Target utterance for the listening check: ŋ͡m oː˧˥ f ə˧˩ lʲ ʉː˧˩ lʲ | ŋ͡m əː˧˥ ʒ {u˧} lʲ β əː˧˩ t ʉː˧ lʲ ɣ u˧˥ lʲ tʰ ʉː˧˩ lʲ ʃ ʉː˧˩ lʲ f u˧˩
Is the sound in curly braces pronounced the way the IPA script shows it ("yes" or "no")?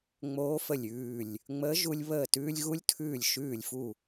yes